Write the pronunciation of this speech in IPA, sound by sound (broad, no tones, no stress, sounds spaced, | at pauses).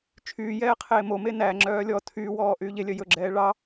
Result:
t͡ʃʰ yː j ɛː qʰ eː m o m e n æ ŋ͡ǁ œː lʲ ɔ tʰ yː w ɔː ʔ yː ʎ e lʲ œ j ɵ ɡ͡ǁ ɛː ɭ ɑ